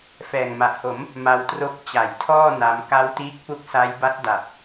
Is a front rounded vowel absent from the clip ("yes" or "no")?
yes